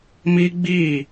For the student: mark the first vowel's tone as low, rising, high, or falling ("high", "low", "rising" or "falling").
high